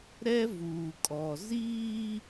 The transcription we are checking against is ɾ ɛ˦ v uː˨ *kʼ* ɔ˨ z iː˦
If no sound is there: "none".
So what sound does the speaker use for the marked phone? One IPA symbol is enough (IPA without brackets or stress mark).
kʼ